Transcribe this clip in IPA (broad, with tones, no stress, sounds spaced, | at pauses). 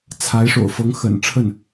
t͡sʰ a˧˥ ɪ̯ ʂ o̰˨˩ ʊ̯ f ɤ˧˥ ŋ x ə̰˨˩ n ʈ͡ʂʰ ə˥˩ n